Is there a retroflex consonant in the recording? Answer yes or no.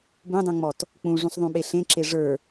yes